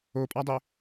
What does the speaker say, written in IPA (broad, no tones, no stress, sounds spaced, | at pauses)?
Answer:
o pʼ a dˤ ɪ